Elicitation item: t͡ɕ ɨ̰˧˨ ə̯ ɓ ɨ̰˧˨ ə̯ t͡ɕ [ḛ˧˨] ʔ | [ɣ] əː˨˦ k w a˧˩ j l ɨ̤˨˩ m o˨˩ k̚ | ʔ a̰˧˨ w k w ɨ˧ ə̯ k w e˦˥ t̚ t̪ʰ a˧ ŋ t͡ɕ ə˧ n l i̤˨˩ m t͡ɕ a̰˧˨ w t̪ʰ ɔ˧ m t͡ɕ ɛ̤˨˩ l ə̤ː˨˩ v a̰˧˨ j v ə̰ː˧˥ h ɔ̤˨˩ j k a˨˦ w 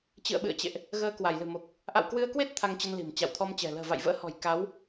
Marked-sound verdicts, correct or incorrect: correct, correct

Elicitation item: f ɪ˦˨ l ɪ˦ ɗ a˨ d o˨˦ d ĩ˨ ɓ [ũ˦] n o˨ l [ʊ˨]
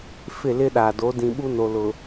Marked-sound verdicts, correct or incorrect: incorrect: u˦, correct

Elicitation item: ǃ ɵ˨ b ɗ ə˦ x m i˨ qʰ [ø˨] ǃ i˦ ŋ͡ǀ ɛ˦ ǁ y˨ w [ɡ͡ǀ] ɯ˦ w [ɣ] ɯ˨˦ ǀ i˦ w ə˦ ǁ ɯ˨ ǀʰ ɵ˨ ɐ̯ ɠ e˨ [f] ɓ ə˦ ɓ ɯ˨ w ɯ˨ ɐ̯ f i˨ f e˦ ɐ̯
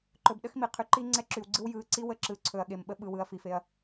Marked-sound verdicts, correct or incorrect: incorrect: y˨, correct, incorrect: j, incorrect: m

